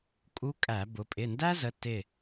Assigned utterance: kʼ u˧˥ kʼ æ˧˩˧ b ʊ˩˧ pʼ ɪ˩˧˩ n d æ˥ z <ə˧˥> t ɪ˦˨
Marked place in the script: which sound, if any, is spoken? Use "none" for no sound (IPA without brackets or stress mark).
ə˩˧˩